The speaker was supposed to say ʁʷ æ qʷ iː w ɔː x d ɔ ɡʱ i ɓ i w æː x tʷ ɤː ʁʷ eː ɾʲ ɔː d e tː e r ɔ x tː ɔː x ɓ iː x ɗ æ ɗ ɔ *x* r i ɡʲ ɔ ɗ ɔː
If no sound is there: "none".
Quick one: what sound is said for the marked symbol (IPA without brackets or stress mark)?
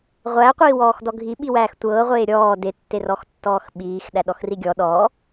x